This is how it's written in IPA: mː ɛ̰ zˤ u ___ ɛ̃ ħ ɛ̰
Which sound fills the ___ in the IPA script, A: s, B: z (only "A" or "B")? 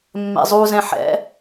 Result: B